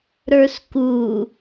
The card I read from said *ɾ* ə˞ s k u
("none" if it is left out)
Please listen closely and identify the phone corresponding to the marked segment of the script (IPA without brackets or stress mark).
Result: ɾ